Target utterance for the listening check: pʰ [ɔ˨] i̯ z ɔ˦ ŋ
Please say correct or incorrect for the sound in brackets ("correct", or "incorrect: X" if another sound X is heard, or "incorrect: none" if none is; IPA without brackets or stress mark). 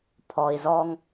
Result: correct